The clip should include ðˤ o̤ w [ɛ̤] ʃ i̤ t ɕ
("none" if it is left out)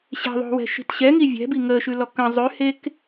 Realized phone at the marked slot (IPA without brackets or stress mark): ɛ̤